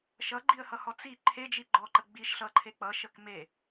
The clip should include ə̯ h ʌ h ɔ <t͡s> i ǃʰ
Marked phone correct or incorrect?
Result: correct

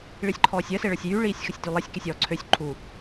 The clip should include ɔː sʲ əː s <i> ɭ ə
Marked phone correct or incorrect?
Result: incorrect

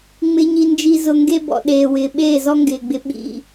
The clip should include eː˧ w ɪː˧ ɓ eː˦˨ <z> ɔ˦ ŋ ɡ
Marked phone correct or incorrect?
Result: correct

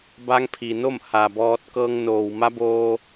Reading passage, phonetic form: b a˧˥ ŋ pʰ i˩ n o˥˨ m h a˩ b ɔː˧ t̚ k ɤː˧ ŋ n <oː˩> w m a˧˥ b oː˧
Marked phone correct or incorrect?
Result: correct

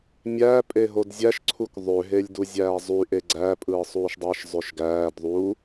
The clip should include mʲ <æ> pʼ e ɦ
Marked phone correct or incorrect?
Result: incorrect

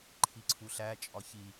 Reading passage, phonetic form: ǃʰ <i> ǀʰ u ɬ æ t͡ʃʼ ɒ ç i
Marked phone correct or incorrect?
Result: correct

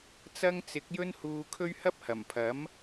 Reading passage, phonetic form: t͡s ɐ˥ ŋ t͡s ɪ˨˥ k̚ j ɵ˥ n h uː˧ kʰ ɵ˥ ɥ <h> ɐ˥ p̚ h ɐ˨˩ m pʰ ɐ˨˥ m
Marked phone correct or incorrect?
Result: correct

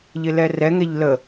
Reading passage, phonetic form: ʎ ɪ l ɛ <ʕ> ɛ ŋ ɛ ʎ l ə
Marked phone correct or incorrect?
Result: incorrect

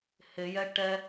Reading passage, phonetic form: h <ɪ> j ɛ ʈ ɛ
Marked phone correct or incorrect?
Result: correct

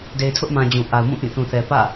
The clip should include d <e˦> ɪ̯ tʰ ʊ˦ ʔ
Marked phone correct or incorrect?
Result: incorrect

